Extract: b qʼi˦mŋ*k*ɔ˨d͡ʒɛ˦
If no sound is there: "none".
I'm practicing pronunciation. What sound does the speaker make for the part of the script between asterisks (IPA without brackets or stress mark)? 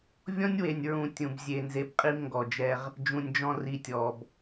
ɡ